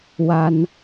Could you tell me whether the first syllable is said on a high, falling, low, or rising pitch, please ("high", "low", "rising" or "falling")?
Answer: high